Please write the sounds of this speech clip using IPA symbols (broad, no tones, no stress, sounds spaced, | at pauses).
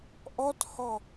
ʔ ɔ t h ɔ